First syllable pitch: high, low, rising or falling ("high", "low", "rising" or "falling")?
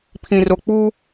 low